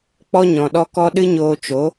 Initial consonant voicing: voiceless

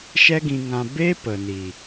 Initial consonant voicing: voiceless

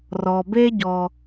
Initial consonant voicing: voiced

